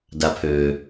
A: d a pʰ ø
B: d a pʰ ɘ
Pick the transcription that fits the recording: A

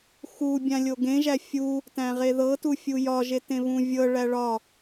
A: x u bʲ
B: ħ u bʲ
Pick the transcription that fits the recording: A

